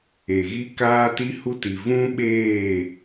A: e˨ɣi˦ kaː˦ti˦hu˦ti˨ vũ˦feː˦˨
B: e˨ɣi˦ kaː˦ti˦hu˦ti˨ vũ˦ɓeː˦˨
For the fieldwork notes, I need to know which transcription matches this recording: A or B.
B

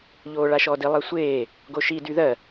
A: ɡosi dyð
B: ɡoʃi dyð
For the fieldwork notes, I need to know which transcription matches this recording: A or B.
B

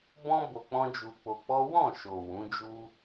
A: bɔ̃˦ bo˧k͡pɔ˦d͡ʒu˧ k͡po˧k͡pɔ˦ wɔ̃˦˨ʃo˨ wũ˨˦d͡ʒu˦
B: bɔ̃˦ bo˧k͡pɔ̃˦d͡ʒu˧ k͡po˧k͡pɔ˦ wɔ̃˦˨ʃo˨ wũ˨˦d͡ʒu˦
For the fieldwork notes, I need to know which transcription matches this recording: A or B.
B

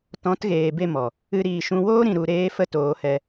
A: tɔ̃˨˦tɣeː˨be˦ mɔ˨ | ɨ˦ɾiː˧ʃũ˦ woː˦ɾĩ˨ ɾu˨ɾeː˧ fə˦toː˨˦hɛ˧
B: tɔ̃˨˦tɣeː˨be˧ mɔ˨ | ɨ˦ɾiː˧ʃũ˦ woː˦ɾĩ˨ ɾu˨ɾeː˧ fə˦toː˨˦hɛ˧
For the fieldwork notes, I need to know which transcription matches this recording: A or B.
B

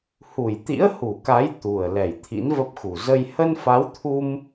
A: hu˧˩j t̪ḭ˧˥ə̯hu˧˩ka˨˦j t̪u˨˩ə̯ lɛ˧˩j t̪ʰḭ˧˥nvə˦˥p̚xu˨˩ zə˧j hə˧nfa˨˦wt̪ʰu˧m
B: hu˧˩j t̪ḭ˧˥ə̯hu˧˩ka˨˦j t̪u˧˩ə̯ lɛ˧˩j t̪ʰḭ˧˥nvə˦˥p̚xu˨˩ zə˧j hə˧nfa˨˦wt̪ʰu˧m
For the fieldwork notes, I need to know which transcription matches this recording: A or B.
A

